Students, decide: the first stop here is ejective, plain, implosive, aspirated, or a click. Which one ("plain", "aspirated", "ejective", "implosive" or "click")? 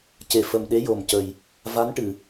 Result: plain